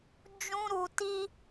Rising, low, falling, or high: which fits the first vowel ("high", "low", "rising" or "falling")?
high